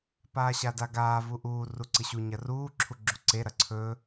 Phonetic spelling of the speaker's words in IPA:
p aː ɕ a d a ɡ aː v u ʔ uː r u ǀ ɨ ɕ u ɲ ɐ r uː ǁʰ u ɡ͡ǁ u ǀ e ɾ ɐ ǀʰ ɵː

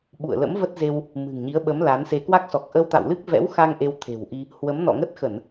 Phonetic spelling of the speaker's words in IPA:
ɓ ṵ˧˨ ə̯ l ə̰˧˥ m v ə˦˥ t̚ z e˧ w | m ɨ̤˨˩ ŋ ɲ i˨˦ ə̯ ɓ ə˨˦ m l a˨˦ n s e˧ k w a˦˥ k̚ s ɔ˨˩ k̚ ʔ ə˧ w t̪ a̰˧˨ w l ɨ˦˥ k̚ v ɛ̰˧˥ w x a˧ ŋ ʔ e˧ w t̪ʰ e̤˨˩ w ʔ i˧ | h w ə˨˦ m n ɔ̰˧˨ ŋ ə˦˥ t̚ x ə˧˩˨ n

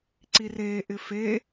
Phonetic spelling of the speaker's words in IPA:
ǀ i r eː ʔ ɪ f e

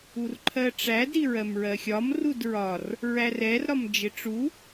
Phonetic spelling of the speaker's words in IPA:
u r ǃʰ ɜ ʈ͡ʂ æ d ɾ i ɹ ɜ m ɹ ɜ xʲ ɒ m r u d ɹ ɒ r | ɹ æ r ɛ r ɾ ɒ m d͡ʒ ɪ ʈ͡ʂ u

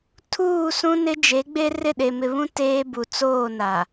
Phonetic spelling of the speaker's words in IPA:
tʰ uː˦˨ s ũ˦ n ɪ˦ d͡ʒ e˨˦ ɡ͡b e˦ r ɪ˦˨ ɗ e˨ m ɪ˨ β ũ˦ t eː˦ b u˨ t͡s oː˦˨ n a˨

